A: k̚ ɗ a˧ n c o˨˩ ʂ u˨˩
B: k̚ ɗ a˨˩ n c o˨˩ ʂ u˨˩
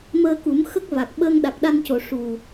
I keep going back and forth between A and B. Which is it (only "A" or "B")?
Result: A